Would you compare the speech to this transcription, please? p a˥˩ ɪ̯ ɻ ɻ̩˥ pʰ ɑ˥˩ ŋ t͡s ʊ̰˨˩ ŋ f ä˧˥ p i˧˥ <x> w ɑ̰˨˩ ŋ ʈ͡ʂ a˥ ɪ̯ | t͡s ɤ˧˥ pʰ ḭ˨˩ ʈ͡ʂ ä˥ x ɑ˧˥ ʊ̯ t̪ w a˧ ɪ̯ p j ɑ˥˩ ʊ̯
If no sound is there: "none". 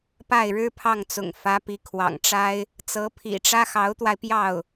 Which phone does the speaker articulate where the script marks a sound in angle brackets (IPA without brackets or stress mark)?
kʰ